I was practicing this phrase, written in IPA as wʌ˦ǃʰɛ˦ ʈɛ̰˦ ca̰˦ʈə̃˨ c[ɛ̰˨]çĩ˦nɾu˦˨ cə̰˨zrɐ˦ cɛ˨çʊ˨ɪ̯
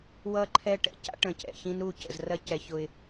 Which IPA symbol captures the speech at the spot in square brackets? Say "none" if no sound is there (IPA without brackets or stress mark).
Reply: ɛ̰˨